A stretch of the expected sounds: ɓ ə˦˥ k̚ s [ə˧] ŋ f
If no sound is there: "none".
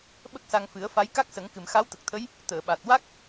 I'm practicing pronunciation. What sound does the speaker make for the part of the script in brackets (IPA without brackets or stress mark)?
a˧